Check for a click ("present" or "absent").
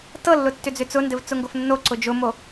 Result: present